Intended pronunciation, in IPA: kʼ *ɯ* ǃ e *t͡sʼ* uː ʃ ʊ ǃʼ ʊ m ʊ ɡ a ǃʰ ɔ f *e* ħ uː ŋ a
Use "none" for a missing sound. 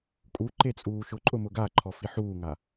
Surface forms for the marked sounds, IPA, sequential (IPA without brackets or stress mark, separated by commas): u, t͡sʼ, i